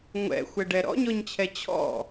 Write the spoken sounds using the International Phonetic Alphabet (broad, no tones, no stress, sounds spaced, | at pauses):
ŋʷ ɛ̰ xʷ ɛ ɖ ɛ ɾ ɔ̰ ɲ ɔ ɲ t͡ɕʰ ɛ t͡ɕʰ ɔ̰